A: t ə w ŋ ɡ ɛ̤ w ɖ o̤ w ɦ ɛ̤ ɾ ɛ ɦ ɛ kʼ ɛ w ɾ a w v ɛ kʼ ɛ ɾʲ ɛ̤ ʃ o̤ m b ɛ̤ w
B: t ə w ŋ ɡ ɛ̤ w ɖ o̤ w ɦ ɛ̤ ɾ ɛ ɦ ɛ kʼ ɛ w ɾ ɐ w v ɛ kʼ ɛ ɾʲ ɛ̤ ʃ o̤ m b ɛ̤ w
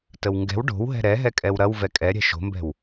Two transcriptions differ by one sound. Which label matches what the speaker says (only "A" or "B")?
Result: B